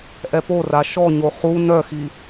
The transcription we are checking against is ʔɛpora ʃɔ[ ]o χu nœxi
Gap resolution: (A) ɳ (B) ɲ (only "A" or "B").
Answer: B